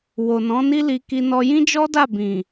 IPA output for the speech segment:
wo˨nɔ̃˨˦ ni˦li˧ki˧ nɔ˧jĩ˦d͡ʒɔ˦da˦˨ bĩ˨

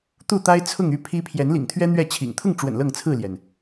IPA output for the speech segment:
t̪u˥˨t̪a˦ɪ̯ t͡sʰʊ˥˨ŋy˥˨pʰi˦ pʰjɛ˨˦nlḭ˨˩ŋt̪ʰɥɛ˦ n̪ɥɛ˥˨t͡ɕʰḭ˨˩ŋ t̪ʰʊ˥˨ŋʈ͡ʂwə̰˨˩n lɤ˥˨ŋt͡sʰɹ̩˥˨ljɛ˩n

